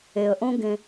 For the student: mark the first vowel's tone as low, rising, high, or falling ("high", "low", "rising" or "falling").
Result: low